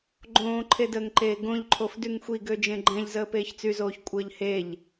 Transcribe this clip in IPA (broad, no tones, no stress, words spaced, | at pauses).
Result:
ɡ͡ǃõːǃʰedəːŋǃeː ɡõʎǃʰof dyŋxʷiɡø d͡ʒẽɡ͡ǃɛ̃ʎ zəːpeːçt͡syzoːç kʷʼəːʎheʎ